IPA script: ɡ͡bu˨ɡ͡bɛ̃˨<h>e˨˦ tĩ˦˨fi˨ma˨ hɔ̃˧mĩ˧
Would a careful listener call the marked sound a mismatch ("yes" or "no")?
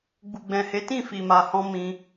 no